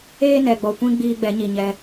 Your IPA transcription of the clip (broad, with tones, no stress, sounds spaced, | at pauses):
eː˦ n ɛ˨ ɡ͡b ɔ˨ kʷ ĩ˦ ɡ͡b iː˦ ɡ͡b ɛ˨˦ ɲ i˨ ɲ ɛ˦